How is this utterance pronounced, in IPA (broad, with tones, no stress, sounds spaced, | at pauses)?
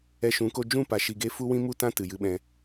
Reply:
ɛ˧ ʃ ũ˨˦ k o˧ d͡ʒ ũ˦˨ p a˧ ʃ i˧ ɡ e˦ f u˦ w ĩ˦ m u˦ t ã˦ t ɨ˨ j ɨ˧ ɓ ɛ̃˧